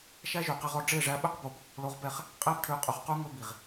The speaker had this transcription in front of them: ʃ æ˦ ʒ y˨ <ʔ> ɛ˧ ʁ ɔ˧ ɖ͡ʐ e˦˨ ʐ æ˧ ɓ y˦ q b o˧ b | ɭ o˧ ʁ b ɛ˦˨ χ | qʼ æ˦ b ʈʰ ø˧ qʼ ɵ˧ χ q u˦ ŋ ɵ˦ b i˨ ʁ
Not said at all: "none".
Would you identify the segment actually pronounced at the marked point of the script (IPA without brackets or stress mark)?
q